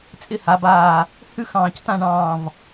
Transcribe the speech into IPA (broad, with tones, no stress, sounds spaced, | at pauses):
t͡sʼ ɪ˥˧ h a˩˧ b aː˧˩ | h ʉ˥ x ɑ̃ː˧˩ c t ã˥˧ ɳ ɑ̃ː˧˩ v